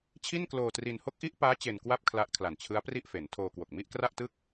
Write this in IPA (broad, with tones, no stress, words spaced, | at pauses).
t͡ɕʰi˥˩nkloː˧tri˧n ho˦˥k̚ʔi˦˥ʔpaː˦˥ t͡ɕe˧nkwa˥˩p̚ kʰla˦˥ʔkʰla˨˩n t͡ɕʰɯ˦˥a̯pri˥˩ʔfe˩˦ntʰoː˧ kwo˨˩k̚mi˥˩ʔkra˥˩ʔtɯ˥˩k̚